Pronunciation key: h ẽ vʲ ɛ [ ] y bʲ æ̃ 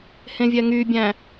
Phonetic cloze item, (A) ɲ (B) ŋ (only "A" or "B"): B